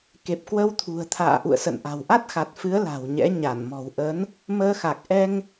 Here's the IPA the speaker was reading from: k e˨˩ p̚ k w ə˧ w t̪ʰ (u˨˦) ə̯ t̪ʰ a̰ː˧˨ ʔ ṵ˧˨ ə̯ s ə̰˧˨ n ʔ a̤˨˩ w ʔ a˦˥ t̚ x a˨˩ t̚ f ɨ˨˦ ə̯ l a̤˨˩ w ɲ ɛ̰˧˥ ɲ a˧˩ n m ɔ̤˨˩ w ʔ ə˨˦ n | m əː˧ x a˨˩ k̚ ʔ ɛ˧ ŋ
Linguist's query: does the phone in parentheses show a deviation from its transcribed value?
yes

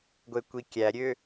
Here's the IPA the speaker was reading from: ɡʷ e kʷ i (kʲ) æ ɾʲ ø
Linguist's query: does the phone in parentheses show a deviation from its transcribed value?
no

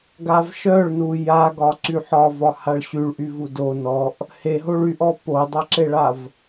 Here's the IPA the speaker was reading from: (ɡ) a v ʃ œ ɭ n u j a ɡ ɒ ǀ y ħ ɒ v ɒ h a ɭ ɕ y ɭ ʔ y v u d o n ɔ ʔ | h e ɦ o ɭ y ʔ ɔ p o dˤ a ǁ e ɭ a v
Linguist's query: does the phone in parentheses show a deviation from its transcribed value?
no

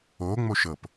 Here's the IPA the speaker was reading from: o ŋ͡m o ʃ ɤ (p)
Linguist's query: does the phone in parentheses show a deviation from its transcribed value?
no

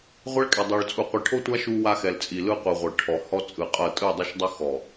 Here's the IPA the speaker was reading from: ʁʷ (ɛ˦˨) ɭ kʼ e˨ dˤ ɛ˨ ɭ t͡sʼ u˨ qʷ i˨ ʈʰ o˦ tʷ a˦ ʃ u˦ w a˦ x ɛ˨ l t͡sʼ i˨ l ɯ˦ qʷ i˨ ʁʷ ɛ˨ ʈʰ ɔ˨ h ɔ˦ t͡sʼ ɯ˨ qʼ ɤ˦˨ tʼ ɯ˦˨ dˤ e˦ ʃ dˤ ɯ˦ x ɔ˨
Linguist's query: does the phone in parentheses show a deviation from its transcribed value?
yes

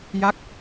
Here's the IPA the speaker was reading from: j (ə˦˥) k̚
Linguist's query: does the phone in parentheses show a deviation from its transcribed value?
yes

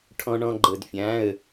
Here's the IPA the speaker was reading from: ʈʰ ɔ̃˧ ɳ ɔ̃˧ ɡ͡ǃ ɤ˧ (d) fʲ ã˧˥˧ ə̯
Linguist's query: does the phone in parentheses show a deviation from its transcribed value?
no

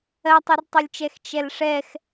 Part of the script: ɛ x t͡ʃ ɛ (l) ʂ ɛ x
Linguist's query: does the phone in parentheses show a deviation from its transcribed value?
no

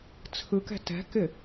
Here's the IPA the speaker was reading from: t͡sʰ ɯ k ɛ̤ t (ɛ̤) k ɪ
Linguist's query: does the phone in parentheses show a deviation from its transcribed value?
no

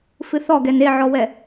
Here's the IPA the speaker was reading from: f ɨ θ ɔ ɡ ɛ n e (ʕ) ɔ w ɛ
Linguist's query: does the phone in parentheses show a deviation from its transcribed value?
no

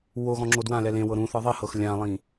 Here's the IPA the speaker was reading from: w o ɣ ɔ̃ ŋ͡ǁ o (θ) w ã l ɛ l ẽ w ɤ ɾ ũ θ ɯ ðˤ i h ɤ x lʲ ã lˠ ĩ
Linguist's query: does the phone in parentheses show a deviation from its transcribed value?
yes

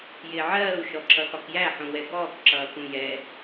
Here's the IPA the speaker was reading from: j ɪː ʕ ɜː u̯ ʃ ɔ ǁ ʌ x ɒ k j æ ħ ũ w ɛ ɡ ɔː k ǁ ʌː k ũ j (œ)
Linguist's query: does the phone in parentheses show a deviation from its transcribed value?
yes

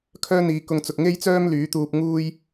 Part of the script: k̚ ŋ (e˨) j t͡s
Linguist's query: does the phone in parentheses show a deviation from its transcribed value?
yes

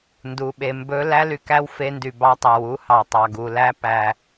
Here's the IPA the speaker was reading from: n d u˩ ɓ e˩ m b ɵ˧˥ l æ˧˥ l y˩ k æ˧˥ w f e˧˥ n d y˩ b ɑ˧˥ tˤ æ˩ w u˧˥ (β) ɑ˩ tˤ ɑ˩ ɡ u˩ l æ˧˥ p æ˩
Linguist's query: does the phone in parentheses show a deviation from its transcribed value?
yes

